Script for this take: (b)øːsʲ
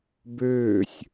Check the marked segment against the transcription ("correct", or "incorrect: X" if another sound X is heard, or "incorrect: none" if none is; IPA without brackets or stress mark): correct